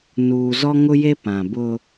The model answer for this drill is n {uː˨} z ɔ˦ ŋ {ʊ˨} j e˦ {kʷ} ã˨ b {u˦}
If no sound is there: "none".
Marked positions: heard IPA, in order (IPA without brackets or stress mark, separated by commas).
uː˨, ʊ˦, p, ʊ˦